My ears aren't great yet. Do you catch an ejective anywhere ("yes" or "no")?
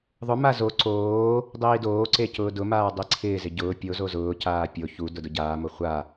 no